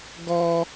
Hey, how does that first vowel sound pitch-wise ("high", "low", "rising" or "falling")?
high